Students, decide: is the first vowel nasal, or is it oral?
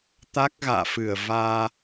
oral